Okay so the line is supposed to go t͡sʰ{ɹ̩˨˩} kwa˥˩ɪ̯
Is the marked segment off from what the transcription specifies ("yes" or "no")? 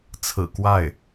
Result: no